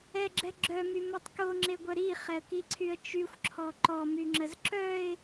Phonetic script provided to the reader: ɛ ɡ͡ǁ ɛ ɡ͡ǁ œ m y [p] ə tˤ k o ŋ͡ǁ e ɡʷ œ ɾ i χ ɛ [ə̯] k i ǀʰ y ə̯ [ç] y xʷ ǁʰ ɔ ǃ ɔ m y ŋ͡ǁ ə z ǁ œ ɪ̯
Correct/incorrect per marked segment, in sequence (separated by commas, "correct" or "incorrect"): incorrect, correct, incorrect